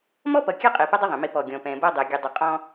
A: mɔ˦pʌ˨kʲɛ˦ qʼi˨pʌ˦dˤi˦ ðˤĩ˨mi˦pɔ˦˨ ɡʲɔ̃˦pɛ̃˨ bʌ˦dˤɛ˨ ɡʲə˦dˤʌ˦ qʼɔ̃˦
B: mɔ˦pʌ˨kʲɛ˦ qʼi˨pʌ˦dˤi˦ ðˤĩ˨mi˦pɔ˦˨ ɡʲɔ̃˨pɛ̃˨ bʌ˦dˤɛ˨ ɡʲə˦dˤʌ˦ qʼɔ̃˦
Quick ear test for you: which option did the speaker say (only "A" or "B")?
B